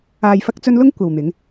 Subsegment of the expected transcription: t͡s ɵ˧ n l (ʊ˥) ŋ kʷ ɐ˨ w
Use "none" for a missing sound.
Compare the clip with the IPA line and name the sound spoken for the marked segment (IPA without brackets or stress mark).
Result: ʊ˥